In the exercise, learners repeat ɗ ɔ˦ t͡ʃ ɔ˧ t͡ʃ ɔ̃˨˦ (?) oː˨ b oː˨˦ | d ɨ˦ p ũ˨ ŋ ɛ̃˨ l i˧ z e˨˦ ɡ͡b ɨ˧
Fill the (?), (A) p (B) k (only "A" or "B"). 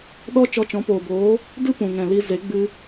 A